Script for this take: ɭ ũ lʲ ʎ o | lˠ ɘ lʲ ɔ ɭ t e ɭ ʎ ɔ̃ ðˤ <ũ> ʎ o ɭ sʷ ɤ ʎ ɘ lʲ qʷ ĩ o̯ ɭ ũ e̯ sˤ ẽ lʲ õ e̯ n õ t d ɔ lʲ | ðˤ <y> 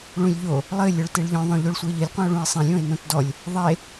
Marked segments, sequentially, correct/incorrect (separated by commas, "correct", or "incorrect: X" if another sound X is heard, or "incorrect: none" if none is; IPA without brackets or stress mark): incorrect: õ, incorrect: e